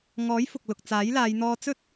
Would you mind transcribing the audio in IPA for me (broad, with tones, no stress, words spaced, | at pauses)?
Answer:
ŋɔː˨˥jfʊ˨k̚ lʊ˨k̚t͡saː˨˥jlaː˨˧j n̪ɔː˧t͡sɵ˥t̚